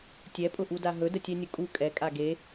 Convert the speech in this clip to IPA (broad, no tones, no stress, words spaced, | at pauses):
tʲɛpʼʊʔuda ɦɵdətʲɛnʲʊ kʼu kʼɛkʼa ɡe